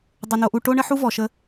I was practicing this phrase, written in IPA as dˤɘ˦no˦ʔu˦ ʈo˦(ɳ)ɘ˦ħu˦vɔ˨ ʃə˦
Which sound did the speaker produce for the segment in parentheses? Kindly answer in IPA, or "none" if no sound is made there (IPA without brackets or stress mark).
ɳ